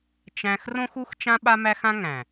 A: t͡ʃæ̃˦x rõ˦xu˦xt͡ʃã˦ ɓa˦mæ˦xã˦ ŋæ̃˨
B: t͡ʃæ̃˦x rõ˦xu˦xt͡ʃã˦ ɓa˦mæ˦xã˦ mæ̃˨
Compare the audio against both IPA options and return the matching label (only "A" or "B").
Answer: A